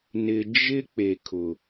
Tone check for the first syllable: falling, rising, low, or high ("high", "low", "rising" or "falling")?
low